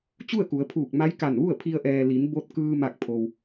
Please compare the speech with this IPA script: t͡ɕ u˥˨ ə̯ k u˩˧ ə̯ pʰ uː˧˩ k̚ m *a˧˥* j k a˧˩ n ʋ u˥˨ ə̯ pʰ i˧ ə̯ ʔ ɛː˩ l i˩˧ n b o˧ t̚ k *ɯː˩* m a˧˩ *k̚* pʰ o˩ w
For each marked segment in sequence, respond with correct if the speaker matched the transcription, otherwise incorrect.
correct, incorrect: ɯː˧, correct

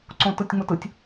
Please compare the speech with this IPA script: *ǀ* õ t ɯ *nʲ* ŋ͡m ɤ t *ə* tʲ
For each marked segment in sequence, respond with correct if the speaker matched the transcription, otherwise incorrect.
correct, incorrect: tʲ, incorrect: ɯ

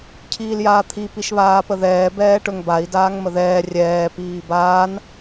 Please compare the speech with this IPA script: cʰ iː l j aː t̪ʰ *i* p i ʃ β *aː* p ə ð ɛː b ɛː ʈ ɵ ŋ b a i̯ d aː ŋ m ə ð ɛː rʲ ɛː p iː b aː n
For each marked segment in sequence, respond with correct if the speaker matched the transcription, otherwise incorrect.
correct, correct

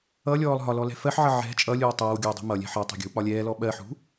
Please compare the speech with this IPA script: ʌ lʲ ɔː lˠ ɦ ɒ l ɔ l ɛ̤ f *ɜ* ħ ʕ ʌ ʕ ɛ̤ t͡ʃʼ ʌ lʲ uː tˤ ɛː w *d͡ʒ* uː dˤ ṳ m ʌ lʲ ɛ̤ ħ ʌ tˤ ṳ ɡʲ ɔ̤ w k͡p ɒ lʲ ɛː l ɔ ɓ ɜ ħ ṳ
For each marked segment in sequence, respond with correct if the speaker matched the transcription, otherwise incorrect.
correct, incorrect: ɡʲ

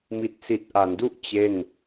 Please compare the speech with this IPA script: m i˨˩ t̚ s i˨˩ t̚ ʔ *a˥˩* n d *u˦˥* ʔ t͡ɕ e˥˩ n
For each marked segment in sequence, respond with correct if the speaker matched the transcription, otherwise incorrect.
incorrect: a˩˦, incorrect: u˥˩

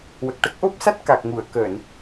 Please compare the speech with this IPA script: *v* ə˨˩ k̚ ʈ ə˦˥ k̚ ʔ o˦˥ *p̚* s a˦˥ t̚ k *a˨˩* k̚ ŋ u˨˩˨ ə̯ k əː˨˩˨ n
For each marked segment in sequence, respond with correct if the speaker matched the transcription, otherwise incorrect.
incorrect: w, correct, correct

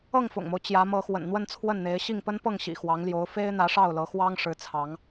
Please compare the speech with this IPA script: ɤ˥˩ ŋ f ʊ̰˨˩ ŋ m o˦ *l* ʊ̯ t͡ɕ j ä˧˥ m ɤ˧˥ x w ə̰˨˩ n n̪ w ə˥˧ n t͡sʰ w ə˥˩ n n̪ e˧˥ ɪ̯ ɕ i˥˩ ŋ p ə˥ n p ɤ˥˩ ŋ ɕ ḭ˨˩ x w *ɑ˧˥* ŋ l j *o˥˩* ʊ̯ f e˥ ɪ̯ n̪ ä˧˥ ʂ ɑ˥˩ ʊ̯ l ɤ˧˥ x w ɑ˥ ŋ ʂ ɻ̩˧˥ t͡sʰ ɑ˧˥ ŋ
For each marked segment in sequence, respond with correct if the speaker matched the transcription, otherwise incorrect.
incorrect: none, correct, incorrect: o˧˥

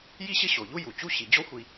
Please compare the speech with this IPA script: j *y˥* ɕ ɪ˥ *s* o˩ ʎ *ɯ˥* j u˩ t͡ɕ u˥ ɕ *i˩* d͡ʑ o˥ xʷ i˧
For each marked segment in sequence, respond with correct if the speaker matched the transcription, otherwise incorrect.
incorrect: i˥, incorrect: ɕ, incorrect: u˥, correct

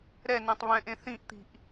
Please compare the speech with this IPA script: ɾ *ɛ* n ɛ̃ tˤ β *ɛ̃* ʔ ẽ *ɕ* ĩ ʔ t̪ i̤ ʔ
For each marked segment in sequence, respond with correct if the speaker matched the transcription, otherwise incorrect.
correct, correct, incorrect: θ

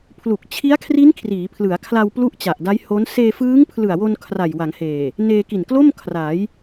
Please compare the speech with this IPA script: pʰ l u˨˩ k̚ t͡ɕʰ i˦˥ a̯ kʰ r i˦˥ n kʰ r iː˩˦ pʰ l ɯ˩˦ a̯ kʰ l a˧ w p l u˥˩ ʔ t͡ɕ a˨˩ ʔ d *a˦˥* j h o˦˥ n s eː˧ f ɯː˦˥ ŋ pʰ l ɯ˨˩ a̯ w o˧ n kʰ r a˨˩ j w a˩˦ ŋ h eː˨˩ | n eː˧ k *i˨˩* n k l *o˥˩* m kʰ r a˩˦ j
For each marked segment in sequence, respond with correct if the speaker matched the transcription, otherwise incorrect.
correct, correct, correct

